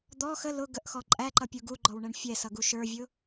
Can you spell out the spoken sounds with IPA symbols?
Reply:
d̪ ɔ x ə l ʊ ɡ ə ʔ x ɔ ǃʼ æ ǃ ʌ pʲ u ɡ u ɡ͡ǃ ɔ w ɳ ɛ ɳ fʲ ɛ s ʌ ɡ u ʃ ə˞ vʲ ʊ

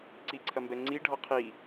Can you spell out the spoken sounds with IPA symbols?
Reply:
ǀ i ǀʰ ɐ m b ɛ ŋ͡ǀ i ɖʱ ɔ qʰ i

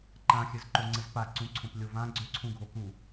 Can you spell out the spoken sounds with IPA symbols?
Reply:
ǃ ã xʲ ɘ z ǃ o ŋ͡ǀ ɘ z p a ǀ ũ ǀʰ õ p lʲ o v ã ɡ͡ǀ ʏ ǀʰ ũ ɡʱ o k u

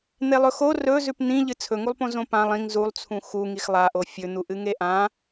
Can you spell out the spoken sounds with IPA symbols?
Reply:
n̪ e lˠ ɵ x o r ɵ z ʉ p n̪ ĩ ʎ ɨ t͡sʰ ɵ ŋ u lˠ p õ z õ p ã lˠ ĩ ŋ z u lˠ t͡sʰ ũ x u ŋ i x lˠ a ʔ o fʲ ɵ n̪ u ʔ ɨ ŋ e ʔ ã

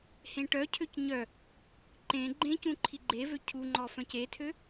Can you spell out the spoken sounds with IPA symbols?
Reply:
h ẽ ʈ œ cʰ ø c ɲ œ | ǃ ẽ ɡ͡ǃ ẽ c ũ ǃʰ i ɡ͡ǃ e v ø cʰ u ŋ͡ǃ ɔ f œ̃ c e tʰ ø

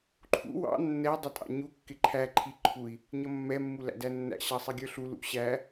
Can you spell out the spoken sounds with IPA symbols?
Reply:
ǃʰ ṵ w ɑ̰ nː ɛ dˤ ʌ tʼ ɑ̰ ɲ u kː ɪ ǃʰ æ ǃʰ i ǃʰ u i̯ | ɲ ʌ mː ɛ mː u l æ̰ d æ nː æ̰ ɕ ɑ sˤ ɛ ɡʲ ə˞ ɬ u l ṵ ɕ æ

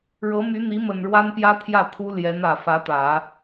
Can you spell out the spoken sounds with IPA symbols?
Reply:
ɻ ɤ˧˥ m y˧˥ n̪ i˧˥ m ə˨˩ n ɻ w a˥ n p j ä˥ t̪ʰ j ä˥˩ t̪ʰ u˥ l j ɛ˧˥ n ä˨˩ f ä˧˥ t̪ ä˨˩˦

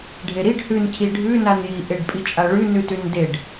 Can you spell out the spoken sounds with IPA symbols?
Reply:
ɖʱ e ɾ i ɖ h ʉ n cʰ i ɖʱ ʉ n a n j i ʔ e ɖ pʼ i t͡ʃʼ a ɭ ʉ n ʉ t ʉ n d e ɖ

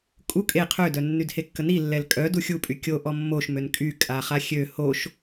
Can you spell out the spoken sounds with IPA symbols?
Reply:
kʼ u kʼ e qʰ ø d œ nː y d h e kː ə n i lː ɛ l kʼ œ d u xʲ u pʼ y kʲ o ʔ ɔ mː o ʃ m ø n kʼ y kʼ a χ a xʲ ø h o ʃ

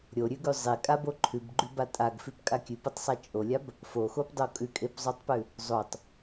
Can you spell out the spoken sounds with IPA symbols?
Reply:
ɾʲ o ɾʲ ʉ ɡ ʉ zˤ e kʼ a b o ǃʰ ʉ b ɡ͡ǃ ʉ b a tʼ a ɡ f ʉ p kʼ a kʲ ʉ p o tˤ sˤ a t͡ʃʼ o lʲ a b | f o x o p dˤ o kʼ ʉ kʼ e p zˤ o tˤ p ʉ | zˤ o tˤ

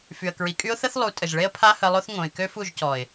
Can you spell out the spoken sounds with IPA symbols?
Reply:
f y˨ ə̯ k ɹ i˨ kʼ y˦ ʊ̯ θ ə˦ θ lˠ u˨˦ tʼ ə˨ ʒ ɭ e˦ ə̯ pʰ a˦ h ə˧ lˠ o˦ θ ŋ õ˨ ɪ̯ k ø˦ f u˦˨ ʒ c ɔ˨ ɪ̯

